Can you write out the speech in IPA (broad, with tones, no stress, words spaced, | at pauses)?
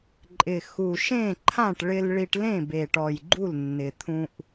ǃʼɪ˨˩xu˨˩ʃẽ˥˨ǃʰã˥˨ʈ ɭɪ˧l ɭi˧ʈlẽ˥˨be˨˩ʈɔ˨˩j ɡ͡ǃu˥˨lnːɪ˨˩t̪ʰũ˧ʔ